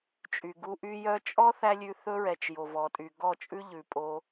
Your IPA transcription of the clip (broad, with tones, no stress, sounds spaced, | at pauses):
t͡ʃʼ y˨ ɡ u˧ ʔ y˦ j œ˧ t͡ʃʼ ɔ˦ θ æ˦ lʲ ʉ˧ θ ɵ˦ ɹ ɛ˨ t͡ʃ j o˨ v ɔ˨ tʼ y˨ ɡ ɔ˦˨ t͡ʃʼ ʉ˦ ʎ ʉ˨ pʼ o˧